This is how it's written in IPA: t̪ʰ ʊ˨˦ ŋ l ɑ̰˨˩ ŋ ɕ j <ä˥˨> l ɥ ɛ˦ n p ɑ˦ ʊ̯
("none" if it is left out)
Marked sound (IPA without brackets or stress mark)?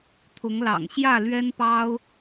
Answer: ä˥˨